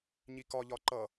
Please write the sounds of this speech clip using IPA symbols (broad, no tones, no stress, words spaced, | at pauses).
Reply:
ɲikɒʎɒ ǃʌ